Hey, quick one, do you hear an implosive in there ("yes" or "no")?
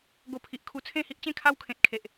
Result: no